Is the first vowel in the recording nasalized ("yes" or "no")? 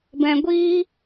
yes